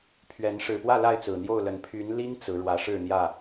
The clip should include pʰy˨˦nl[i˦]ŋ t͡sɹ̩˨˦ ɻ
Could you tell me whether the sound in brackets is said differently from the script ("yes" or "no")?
no